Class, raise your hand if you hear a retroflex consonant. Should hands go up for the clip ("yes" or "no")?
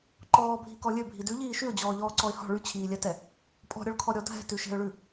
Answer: yes